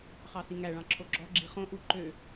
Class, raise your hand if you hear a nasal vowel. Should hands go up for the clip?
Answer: yes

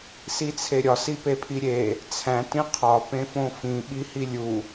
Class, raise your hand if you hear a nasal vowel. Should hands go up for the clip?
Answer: yes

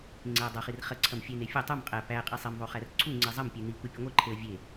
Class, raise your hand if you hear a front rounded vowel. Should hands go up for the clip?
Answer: no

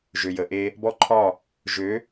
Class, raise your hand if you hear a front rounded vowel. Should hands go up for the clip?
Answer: yes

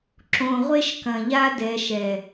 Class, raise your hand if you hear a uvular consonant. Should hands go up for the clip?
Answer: yes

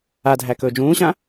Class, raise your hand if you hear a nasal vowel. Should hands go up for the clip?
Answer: yes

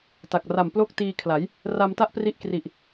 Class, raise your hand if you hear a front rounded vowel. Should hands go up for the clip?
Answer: no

